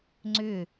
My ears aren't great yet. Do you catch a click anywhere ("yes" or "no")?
yes